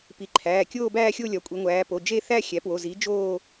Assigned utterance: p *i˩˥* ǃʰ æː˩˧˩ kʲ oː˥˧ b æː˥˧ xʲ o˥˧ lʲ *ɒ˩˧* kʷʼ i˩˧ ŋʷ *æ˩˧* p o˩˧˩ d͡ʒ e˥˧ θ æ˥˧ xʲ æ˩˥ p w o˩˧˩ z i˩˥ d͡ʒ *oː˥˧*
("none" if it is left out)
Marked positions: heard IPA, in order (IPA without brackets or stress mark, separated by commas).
i˩˥, ɒ˩˧, æː˩˧, oː˥˧